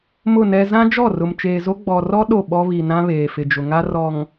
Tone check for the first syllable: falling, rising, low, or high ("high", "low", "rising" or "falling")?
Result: falling